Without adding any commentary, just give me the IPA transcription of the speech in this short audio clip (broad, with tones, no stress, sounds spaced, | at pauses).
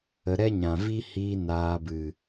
ə˧ ɾ ɛ˦ ɲ ã˨ v i˦ h iː˧ n aː˧ b ɨ˨